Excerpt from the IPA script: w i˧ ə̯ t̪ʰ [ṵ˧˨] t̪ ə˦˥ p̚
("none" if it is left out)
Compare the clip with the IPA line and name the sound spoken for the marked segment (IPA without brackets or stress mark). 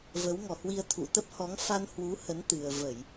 ṵ˧˨